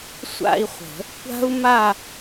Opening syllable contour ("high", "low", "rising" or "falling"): falling